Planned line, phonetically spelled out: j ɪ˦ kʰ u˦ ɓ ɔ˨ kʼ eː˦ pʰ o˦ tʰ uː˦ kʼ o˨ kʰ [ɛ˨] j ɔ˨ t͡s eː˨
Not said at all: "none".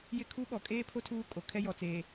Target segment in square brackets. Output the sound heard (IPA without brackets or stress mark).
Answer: ɛ˦